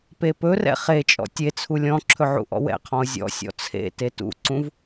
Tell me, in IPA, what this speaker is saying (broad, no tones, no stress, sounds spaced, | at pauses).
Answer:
p e p ɵ r ɛ̰ χ e t͡ʃʼ ɔ̰ tʲ e t͡sʰ u lʲ ɔ̃ ǁʰ ɵ ʕ ṵ ʔ ɔ̰ w ɛ̰ qʰ ɔ̃ ʊ̯ zʲ ɔ̰ sʲ ɔ̰ t͡sʰ ḛ t e t ṵ ǀ ũ v